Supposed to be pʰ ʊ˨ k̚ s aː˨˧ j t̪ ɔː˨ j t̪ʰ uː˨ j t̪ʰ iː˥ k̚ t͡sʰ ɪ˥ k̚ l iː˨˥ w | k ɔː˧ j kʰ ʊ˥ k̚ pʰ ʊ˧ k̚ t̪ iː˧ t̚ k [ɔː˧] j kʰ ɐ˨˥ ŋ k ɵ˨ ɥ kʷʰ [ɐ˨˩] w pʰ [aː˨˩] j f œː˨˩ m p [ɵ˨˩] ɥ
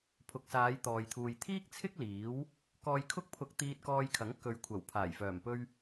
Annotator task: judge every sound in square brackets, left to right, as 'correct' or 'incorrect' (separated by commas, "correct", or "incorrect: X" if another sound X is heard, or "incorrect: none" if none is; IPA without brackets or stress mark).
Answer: correct, correct, correct, incorrect: ɵ˧